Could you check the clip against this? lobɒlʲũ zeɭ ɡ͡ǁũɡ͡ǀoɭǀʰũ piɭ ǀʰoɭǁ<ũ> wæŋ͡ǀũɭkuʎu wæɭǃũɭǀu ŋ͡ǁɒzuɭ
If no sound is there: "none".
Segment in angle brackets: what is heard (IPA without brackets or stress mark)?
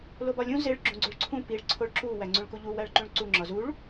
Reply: u